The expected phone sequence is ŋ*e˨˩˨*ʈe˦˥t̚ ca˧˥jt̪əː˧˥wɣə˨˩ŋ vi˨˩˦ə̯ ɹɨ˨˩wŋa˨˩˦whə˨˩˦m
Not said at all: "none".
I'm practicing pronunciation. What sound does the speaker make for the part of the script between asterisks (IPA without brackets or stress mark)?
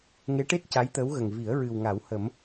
e˧˥